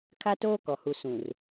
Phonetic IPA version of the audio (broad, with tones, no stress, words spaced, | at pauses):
kʰa˦toː˦kɔ˨hu˨ sũ˨r